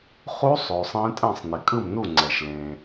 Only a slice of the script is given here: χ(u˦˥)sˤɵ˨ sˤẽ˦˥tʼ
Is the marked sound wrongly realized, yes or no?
no